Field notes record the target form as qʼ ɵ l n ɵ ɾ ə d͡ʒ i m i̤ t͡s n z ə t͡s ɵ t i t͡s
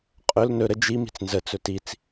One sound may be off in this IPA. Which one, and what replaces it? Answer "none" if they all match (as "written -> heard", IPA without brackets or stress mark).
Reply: none